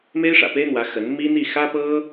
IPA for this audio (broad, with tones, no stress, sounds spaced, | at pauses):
m e˥ ɪ̯ ʂ ä̰˨˩ p e˥ ɪ̯ n̪ w ä˧˥ x ə˧˥ n m i˥ n̪ i˥˩ x ä˥ p ɤ˥